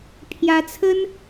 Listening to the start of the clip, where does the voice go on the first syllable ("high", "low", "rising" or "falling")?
rising